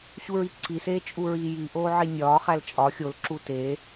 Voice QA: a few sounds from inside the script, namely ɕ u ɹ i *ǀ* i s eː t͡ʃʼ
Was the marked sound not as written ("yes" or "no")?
no